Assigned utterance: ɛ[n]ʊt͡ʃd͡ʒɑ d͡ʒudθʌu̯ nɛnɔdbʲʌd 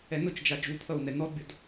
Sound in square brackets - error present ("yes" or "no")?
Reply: no